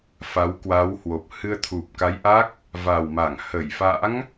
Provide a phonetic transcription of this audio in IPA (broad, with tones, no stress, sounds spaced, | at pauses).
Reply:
f a˨˦ w k w a˨˦ w h w o˨˩ p̚ h ɨ˧ ə̯ t̪ʰ u˨˩ p̚ k a˨˦ j ʔ a˦˥ k̚ | v a˨˩ w m a˧˩ ŋ h ə˧˩ j f a̰˧˥ ŋ